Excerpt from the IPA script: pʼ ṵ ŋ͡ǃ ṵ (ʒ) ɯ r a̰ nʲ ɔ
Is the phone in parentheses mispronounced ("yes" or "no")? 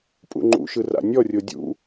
yes